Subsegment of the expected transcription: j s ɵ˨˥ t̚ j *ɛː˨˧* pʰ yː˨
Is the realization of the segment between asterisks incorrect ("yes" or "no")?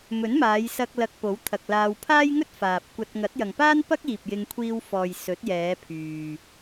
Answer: no